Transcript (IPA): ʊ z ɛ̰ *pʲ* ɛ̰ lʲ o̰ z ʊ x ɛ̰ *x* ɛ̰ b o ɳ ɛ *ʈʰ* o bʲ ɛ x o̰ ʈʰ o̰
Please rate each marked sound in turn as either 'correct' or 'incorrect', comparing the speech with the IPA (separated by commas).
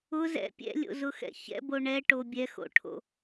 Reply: correct, incorrect, incorrect